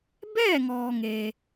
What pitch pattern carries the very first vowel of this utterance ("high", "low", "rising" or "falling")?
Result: falling